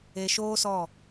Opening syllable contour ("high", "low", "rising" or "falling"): low